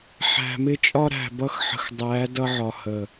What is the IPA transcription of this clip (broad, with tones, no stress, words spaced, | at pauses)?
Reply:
ħæ̤˨mɪ˦t͡ʃʼɒ˦ ɾæ̤˨bʌ˦xħə̤˨x dˤæ˨˦ dʌ˦ʕɒ˨hə˨